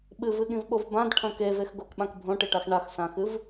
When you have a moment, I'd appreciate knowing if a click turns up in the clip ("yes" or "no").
no